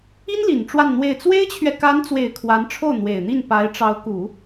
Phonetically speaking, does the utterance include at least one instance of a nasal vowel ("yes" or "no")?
no